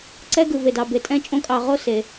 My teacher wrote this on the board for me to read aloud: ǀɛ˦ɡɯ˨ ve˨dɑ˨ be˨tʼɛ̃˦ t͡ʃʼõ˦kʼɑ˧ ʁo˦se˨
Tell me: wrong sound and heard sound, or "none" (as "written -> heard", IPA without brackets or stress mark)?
none